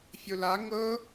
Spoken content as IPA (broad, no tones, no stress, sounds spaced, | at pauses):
fʲ o l a ŋ ɤ